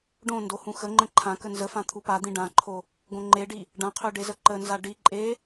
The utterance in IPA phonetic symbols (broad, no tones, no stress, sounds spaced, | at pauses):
ɖ õ n d o h ũ x ə ŋ͡ǃ ə̃ ǃʰ ã k ə n z ə f ã t̪ʰ u p a d̪ ĩ ɖ ã ǃʰ o | ɡ õ ŋ͡ǃ e ɖ i | ɖ ã qʰ ø ɖ e z ə ǃ ə n z a ɖ i ǃʼ e